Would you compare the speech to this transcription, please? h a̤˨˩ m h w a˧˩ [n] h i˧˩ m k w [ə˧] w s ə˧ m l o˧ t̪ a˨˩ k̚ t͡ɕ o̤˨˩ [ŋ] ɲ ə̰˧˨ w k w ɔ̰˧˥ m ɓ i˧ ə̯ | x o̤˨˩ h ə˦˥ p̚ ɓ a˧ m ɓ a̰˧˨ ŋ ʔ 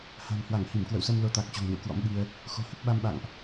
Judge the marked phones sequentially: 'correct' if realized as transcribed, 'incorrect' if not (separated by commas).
incorrect, incorrect, correct